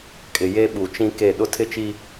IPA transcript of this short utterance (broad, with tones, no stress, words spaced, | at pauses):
kʼɪ˨ je˦ɓu˨t͡ʃĩ˦ke˦˨ ɗʊ˦tʰɪ˦t͡ʃi˦